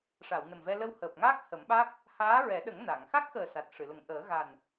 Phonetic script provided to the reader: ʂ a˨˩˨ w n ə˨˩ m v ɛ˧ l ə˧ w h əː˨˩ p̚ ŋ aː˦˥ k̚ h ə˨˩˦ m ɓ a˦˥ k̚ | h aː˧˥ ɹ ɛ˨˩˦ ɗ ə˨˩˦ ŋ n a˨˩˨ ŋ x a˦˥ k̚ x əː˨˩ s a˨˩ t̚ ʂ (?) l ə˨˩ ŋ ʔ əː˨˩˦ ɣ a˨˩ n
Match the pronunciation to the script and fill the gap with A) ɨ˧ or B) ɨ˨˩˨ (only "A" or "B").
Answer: B